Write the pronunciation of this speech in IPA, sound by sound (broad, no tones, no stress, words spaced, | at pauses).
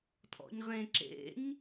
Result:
tʼɔ̰ɲʁẽ ǁḛɲ